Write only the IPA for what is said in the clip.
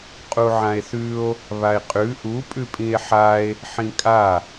qʼuʕãe̯θʉo̯ | βae̯qʼʉ ʔu pʼʉpʼĩe̯ħae̯ | ħĩkʼa

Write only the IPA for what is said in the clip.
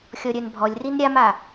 xʲɔɾʲœnbʱɔlʲrin ɾʲama

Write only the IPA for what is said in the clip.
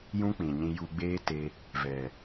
jũ˦k͡pĩ˨ɲĩ˧ ju˧ɡ͡beː˦te˧ | vɛ˨

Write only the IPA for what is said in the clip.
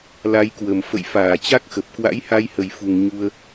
la˨˦jkwə˨˩m fə̰˧˨j faː˧˩t͡ɕa˦˥k̚xə˨˩p̚ kwa̰˧˥jha˧jhə˨˩jfu˨˩ŋ ɲu˧ə̯

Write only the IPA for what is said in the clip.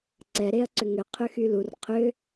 ǀɛ ɾeɐ̯ǀʏŋʏ qʰʏxylur qʰʏ

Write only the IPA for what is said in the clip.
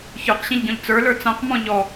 çə˞qɕĩʎɟɔ̃ʎ t͡sə˞lə˞ t͡sãqmɔ̃ ʎɔ

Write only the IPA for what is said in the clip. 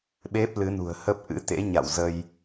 ɓe˦˥p̚lɨ˨˦nṳ˨˩ə̯hə˦˥p̚ ʔɨ̰˧˥t̪ḛ˧˥ɲa̰˧˨w zə˧j

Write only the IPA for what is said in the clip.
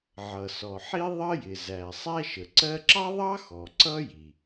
ʕʌ˩sɔ˩ħi˥ ðˤʌ˥jɪ˩zæ˩ sˤæ˥ʃə˩ǀɜ˥ ǁɑ˥ðˤɑ˥ xɔ˩ ǀʌ˥ji˩

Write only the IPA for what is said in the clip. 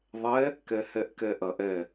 ðˤɛ | kɛhɛʔkɛʔɐʔ ɛ

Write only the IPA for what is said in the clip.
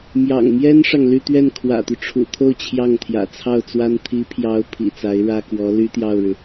mjɑ̰˨˩ŋmjɛ˥nʂɑ˨ŋ ly˥˧t̪ɥɛ˥˩n kʰwä̰˨˩t̪y˦ʈ͡ʂʰṵ˨˩t̪ʰo˥˧ʊ̯ t͡ɕʰjɑ˥˩ŋt̪ʰjä̰˨˩t͡sʰɑ˥˩ʊ̯t͡swa˥n t̪ʰi˧˥pʰjɑ˧˥ʊ̯ pʰḭ˨˩t͡sa˧˥ɪ̯ ɻä˥kwɔ˧˥ ly˥t̪jɑ˥˩ʊ̯ɻɻ̩˩

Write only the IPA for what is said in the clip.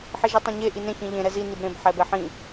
ħiʒitˤɑ̃ɲe ʔinẽ çĩʎẽ ɾɛzi nibɾẽb ħɛbɛħĩ

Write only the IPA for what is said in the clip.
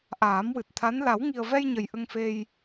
ʔaː˨˩˦mwɨ˨˩t̚t̪ʰa˧˥n la˨˩˦wŋi˨˩ə̯vɛ˧j ɲə˨˩jʔə˧ŋfe˧j

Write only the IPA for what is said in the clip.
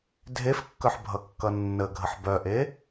dʱefkːœħ bʱʌkːʌnːəɡʱəħ bœʔe

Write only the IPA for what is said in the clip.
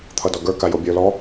t̪ʰʌdɔɡə˞ kajobʲə˞ lɔ

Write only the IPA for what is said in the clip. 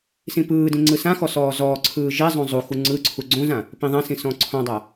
sĩpɯːdĩ ŋ͡ǀɯsãxɔ sɔːzɔːǀʰɯː ʒezˤõ zˤu xuŋ͡ǀɯǀʰu ɡ͡ǀõzã | pĩðˤãsĩ sɔ̃ǀʰɔ̃dˤa

